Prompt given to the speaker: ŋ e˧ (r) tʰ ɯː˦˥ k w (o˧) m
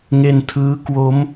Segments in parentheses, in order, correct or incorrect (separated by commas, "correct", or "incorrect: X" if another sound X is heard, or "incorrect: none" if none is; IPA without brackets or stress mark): incorrect: n, incorrect: o˦˥